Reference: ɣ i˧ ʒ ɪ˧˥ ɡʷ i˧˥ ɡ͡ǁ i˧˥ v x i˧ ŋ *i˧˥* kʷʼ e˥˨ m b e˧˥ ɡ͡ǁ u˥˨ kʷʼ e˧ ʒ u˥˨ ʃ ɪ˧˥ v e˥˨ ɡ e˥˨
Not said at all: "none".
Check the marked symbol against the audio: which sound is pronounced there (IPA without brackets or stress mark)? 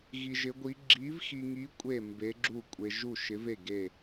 i˧˥